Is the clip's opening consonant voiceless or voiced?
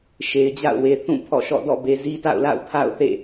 voiceless